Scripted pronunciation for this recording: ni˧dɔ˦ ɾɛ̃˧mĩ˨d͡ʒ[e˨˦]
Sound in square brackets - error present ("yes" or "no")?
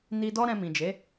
no